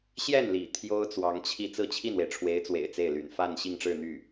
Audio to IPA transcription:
ɕ j ɛ˥˩ n l ḭ˨˩ t̪ʰ j o˥ ʊ̯ t͡s w ɑ˧˥ ŋ t͡ɕʰ i˥˧ t͡s ɹ̩˥˧ t͡ɕʰ i˥˩ n w e˩ ɪ̯ ʈ͡ʂʰ w e˧˥ ɪ̯ t͡s w ḛ˨˩ ɪ̯ t͡s e˥˩ ɪ̯ l y̰˨˩ n f a˥˧ n ɕ i˥˧ ŋ ʈ͡ʂ ɻ̩˥˧ n̪ y˥˩

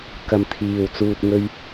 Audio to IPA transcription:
k ɐ˨ m t̪ʰ iː˨ w t͡s uː˧ t̚ ŋ ɵ˧ ɥ

